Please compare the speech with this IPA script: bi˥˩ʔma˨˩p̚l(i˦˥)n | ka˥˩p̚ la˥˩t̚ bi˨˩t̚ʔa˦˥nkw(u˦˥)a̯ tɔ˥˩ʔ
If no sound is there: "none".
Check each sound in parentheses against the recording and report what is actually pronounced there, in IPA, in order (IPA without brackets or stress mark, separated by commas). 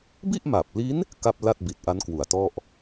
i˦˥, u˨˩